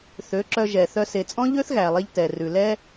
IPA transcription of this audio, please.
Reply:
θ ø˨˦ ǁ œ˧ ʒ ɛ˨ θ œ˧ s e˨ t͡sʼ ɔ̃˦ ʎ ø˦ θ ɣ æ˨ lˠ e˧ ʎ t ɛ˨ r ʉ˨ l ɛ˦

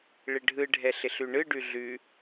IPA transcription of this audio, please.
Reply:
ɭ ɪ ɖʱ ɯ ɖʱ ɛ ɬ ɪ ɬ ʉ ɳ ɯ ɖ ʉ ɮ ʉ

